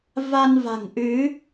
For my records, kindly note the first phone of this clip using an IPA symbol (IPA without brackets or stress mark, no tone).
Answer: v